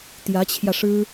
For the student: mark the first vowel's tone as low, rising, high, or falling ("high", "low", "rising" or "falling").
rising